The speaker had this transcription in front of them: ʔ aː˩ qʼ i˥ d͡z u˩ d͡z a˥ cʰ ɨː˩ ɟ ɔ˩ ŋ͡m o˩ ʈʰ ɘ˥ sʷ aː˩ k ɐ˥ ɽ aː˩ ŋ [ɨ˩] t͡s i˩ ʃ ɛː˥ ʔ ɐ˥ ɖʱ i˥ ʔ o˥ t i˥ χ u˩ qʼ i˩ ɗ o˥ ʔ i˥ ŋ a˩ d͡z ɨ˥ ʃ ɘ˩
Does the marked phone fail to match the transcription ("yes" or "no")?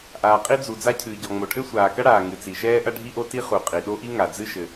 no